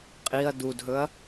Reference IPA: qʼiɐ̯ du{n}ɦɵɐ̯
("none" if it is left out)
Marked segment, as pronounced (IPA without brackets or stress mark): d